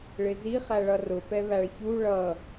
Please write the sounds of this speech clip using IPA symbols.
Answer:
ɭ ɪ z i χ æ ɭ ʌ r ʊ p ɛ β æ ɭ ç u ɭ ʌ

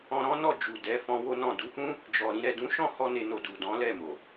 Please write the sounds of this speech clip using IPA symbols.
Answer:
ɔ̃˧ ɾ ɔ̃˦ n ɔ˦˨ d͡ʒ u˨ d ɛ˨˦ f ɔ̃˧ w o˦ n ɔ̃˦˨ d u˨˦ h ũ˦ | d͡ʒ ɔ˨ ɾ ĩ˨ ɾ ɛ˨ d ũ˨˦ ʃ ɔ̃˦˨ h ɔ˧ n e˧ n o˧ d u˨ d ɔ̃˨˦ l ɛ˦˨ m o˨

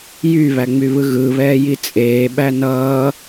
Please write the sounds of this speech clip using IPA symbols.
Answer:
j y β æ ŋ͡m y β ɯ ɣ ɯ β ɛː j i t͡sʼ eː ɓ æ n ʌː

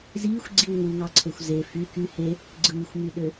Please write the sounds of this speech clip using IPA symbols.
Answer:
z iː xʷ ɡ͡ǀ i w ŋ u ŋ ɑ ǀʰ e xʷ z e f y k y h e | ɡ͡ǀ ɯː xʷ m y ɗ ø

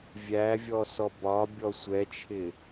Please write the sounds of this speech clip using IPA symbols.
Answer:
vʲ æ vʲ ɔ s ɔ b ɒ bʲ ɔ sʷ ɛ t͡ʃʰ ɪ

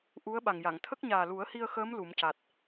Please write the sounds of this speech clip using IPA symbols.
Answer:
ʔ u˧˥ ə̯ ɓ a˨˩ ŋ j a˨˩˨ ŋ t̪ʰ ə˦˥ k̚ ɲ aː˨˩ l u˨˩˦ ə̯ h i˧ ə̯ x əː˧˥ m l u˨˩˦ m c a˨˩ t̚

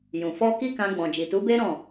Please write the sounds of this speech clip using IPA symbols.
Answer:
j ũ˨ f ɔ˧ k i˦ k ã˧ ɡ͡b ɔ̃˨ d͡ʒ i˨ t u˨˦ b e˦ ɾ ɔ̃˦˨

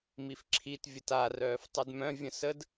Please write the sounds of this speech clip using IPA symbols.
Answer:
m i f ǁʰ i t vʲ ə t a r œː f tˤ u d m œ̃ vʲ ə̃ s ə d

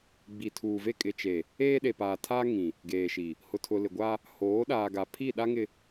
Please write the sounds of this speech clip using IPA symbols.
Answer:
ɡ͡b i˨ tʰ uː˨ v e˦ kʼ ɪ˨ t͡ʃ e˨ | eː˦ ɗ e˨ p aː˨ tʰ aː˦ ŋ ĩ˨ | ɡ eː˨ ʃ i˨ | h ʊ˨ tʰ ʊ˨ l ɪ˨ ɡʷ a˦ | h oː˨˦ ɗ aː˨ ɡ a˨ pʰ i˦˨ ɗ a˦ ŋ ɪ˨

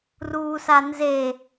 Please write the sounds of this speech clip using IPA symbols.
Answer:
r uː s a n z e

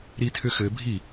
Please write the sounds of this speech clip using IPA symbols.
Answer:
ɾ i tʰ ʏ x ɘ bʱ i

